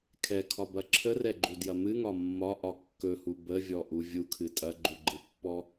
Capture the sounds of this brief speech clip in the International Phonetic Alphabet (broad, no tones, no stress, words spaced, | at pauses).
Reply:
kʰɛkʰɒbɐ ǁʰərɛɡ͡ǃudjɐ mɨŋɒ mːɒʔɒ kːɵhu bəvʲɔʔu vʲukʰɨ tʼɐɡ͡ǃuɡ͡ǃɨpːɔ